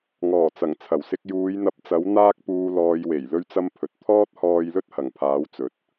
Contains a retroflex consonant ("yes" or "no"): no